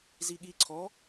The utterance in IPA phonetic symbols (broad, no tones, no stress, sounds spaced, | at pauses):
z i ɠ i ǀʰ ɔː